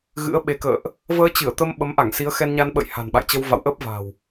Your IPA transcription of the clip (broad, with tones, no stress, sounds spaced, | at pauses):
ɣ ɨ̰˧˥ ə̯ ɓ e˨˦ k ə̰ː˧˨ ʔ | v əː˧ t͡ɕ ɨ˧˩ ə̯ t̪ ə˧ m ɓ ə˨˦ m ʔ a˧˩ ŋ s i˨˦ ə̯ x ɛ˧ n ɲ a˧ n ɓ ə̰˧˨ j h a̤˨˩ n ɓ a̰˧˨ j t͡ɕ ə˧ w v a̰˧˨ w ʔ əː˦˥ p̚ v a̤˨˩ w